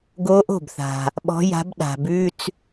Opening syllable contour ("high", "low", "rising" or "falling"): rising